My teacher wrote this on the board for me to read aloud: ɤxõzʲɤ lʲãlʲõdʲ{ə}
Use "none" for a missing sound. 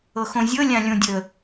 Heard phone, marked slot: ə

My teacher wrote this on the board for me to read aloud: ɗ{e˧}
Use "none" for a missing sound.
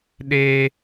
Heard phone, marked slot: e˥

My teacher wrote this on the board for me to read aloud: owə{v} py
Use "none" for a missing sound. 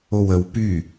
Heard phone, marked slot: w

